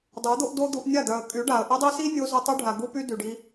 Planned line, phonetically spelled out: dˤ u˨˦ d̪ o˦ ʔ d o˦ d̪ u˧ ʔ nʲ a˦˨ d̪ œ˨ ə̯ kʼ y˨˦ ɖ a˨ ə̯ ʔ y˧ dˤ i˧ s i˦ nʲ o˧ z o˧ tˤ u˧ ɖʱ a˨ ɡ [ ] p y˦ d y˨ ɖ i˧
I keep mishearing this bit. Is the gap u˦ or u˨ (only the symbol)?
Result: u˦